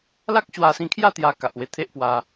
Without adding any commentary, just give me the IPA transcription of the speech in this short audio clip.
la˦k̚ɕwa˧sĩ˧ kʰja˥˧t̪ja˧ ka˨ʔwe˧t̪ʰe˦ʔpwa˧

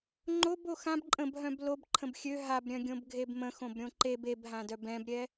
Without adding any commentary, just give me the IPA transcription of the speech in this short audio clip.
ŋ͡ǃob oxãb ǃʼə̃bɦœ̃b lob ǃʰə̃bxʲø ɦabɾʲœ̃ɡʲõb ɡʱebmə̃ xõbɾʲõǃeb ebɦãdœb ɛ̃bɾʲɛ

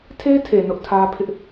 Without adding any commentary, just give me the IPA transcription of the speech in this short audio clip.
tʰe˦ tʰe˨nʊ˦ʔtʰä˦ pʰɪ˦ʔ

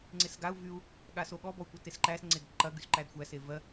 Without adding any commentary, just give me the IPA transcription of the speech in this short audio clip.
ŋ͡ǀesɡau̯ vyu̯ | ɠasoɠɔ bɔu̯kʷɐtesǃæs ŋ͡ǀedǃɐ ɡysǃædxʷæ sevɜ

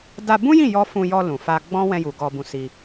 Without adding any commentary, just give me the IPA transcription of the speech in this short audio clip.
da˧bũ˦jĩ˦˨jɔ˧ fũ˧jɔ˧ lũ˨fa˧ɡ͡bɔ̃˦ wɛ̃˧ju˨ ɡɔ˧bũ˧si˧

